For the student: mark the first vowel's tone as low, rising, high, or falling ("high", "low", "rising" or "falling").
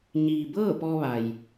low